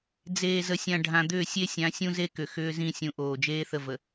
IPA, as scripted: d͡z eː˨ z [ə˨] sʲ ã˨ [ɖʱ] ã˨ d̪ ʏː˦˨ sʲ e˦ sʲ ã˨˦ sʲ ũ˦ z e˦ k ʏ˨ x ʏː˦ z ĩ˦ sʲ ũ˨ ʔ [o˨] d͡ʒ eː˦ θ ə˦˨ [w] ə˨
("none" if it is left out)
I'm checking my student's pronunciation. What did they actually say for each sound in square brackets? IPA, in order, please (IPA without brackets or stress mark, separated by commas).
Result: ə˨, ɖʱ, oː˨, v